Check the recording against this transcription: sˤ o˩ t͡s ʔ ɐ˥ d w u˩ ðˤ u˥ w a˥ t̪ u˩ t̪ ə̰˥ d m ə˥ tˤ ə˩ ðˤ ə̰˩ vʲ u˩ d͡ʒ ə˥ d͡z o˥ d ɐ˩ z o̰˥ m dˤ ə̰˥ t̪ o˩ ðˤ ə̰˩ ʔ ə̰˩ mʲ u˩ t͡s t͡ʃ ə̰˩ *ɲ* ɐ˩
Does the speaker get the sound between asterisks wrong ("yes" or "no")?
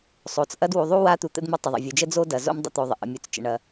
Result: yes